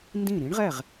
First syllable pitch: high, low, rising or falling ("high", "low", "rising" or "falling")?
falling